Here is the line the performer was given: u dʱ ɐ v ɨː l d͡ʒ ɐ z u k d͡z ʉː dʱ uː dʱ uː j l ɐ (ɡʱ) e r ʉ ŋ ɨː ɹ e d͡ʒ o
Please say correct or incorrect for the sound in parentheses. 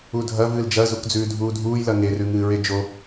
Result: incorrect: ŋ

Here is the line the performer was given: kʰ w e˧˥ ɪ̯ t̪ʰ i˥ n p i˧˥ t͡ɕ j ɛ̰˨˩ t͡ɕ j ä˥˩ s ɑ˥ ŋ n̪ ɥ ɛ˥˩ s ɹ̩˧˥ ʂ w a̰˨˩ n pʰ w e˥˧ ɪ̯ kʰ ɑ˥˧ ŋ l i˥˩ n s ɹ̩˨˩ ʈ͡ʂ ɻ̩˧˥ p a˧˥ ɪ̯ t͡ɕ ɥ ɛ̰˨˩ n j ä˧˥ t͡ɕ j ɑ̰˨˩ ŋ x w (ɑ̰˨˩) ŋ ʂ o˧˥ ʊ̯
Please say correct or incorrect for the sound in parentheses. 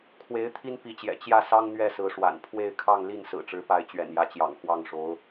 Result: incorrect: ɑ˥˩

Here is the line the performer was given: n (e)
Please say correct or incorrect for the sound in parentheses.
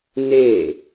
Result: correct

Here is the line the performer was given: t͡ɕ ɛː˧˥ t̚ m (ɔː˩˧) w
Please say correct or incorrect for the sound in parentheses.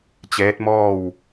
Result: incorrect: ɔː˥˨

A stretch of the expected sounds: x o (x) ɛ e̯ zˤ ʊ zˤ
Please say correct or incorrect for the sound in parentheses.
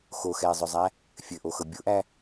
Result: correct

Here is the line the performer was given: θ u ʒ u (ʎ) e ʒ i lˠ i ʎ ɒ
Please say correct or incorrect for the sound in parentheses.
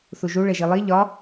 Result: incorrect: ɭ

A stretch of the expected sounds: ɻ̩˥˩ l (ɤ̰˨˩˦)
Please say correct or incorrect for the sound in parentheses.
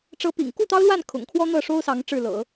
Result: correct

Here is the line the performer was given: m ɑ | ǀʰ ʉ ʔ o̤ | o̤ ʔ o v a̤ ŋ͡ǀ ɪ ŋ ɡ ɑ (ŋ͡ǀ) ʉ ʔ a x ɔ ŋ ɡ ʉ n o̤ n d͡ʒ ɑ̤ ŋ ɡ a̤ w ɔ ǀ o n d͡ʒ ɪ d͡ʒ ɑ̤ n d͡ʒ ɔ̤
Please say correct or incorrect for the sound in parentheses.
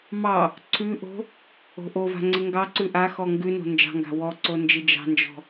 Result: incorrect: ǀ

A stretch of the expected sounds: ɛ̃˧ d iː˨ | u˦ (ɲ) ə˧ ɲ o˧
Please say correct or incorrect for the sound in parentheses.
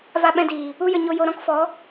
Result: incorrect: j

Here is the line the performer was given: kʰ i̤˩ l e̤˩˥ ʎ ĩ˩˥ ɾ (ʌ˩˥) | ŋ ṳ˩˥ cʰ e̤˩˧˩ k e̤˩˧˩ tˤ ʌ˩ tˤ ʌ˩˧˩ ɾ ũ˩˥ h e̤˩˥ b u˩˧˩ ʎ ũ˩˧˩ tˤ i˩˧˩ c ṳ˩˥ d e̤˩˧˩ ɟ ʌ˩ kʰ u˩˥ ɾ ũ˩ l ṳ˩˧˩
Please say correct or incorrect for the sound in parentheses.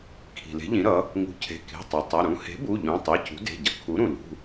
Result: correct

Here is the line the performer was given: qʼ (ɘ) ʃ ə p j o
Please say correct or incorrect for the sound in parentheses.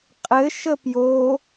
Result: correct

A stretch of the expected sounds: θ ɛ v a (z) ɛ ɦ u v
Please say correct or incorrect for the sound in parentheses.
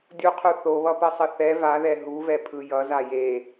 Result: incorrect: ð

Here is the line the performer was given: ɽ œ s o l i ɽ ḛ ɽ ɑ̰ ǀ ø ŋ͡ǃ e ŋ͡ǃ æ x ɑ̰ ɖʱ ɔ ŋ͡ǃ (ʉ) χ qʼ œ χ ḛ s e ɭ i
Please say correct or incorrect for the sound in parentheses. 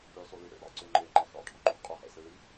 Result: correct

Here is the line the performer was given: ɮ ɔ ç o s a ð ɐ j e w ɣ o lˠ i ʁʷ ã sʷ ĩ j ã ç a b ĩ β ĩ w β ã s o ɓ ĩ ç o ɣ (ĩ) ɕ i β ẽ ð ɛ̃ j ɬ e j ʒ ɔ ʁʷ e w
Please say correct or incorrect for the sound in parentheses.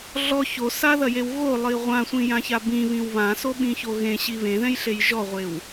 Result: incorrect: ẽ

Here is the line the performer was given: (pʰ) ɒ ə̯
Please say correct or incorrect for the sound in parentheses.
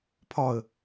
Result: correct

